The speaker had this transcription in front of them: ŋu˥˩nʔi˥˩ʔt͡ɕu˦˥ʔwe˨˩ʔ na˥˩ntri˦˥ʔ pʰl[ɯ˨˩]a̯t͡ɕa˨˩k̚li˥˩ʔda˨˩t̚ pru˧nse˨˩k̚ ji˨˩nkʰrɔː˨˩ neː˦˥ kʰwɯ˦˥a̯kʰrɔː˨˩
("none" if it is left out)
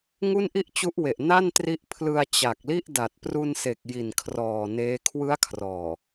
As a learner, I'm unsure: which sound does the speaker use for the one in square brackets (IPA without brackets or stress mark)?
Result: ɯ˧